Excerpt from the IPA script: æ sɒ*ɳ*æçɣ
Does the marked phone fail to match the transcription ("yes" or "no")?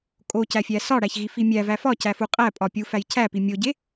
yes